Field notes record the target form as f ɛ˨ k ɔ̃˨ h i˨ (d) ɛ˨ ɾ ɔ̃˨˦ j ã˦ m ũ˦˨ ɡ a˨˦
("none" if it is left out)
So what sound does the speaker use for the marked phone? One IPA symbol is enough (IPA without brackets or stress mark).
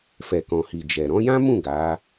d͡ʒ